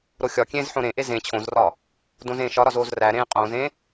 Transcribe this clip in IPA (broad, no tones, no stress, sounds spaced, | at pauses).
ɾ o xʲ ɒ kʲ ẽː z ħ õ ɾ ẽ ʔ e z ẽ t͡ɕʰ õ z r ɒ | d õ z ẽː ʃ ɒ ɾ ɒ z oː z r æ ɾ ẽː qʼ õː z ẽ